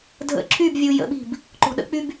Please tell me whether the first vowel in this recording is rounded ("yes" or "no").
no